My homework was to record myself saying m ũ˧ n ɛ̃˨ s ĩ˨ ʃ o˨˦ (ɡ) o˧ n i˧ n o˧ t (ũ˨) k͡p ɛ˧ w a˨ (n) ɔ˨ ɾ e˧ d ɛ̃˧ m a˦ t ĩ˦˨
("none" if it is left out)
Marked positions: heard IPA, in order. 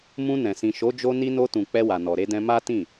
d͡ʒ, ũ˨, n

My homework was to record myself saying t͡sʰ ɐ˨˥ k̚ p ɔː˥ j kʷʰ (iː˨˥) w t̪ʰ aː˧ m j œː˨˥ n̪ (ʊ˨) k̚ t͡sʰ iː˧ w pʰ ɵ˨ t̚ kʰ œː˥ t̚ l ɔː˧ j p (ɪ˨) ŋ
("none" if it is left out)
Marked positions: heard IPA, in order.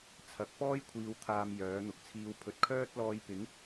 iː˧, ʊ˨, ɪ˨˥

